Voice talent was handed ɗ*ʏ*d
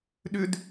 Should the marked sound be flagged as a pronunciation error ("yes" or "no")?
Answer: no